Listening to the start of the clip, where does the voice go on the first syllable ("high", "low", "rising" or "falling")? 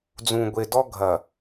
low